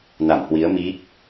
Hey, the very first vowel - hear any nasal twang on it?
no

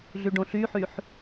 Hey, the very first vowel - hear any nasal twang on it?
no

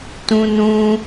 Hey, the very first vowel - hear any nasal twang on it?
yes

